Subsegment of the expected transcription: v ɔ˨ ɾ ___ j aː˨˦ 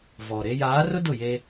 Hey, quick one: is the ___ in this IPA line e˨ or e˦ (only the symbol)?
e˦